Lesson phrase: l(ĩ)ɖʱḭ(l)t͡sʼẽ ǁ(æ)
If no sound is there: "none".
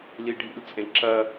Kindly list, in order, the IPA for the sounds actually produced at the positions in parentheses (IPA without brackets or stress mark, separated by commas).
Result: i, l, ɐ